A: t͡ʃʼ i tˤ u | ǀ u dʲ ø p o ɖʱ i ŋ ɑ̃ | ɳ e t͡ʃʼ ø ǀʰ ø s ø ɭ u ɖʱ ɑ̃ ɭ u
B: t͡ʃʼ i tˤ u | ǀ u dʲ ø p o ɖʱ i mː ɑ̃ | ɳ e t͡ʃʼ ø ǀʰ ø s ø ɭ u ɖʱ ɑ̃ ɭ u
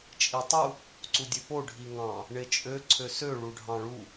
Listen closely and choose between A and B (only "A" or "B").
A